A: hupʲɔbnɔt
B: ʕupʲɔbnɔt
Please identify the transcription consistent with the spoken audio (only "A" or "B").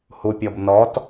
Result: A